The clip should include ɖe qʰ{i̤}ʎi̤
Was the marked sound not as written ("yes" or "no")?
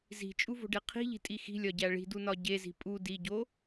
no